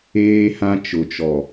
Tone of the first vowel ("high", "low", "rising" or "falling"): high